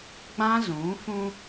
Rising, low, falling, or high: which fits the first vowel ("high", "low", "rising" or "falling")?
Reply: high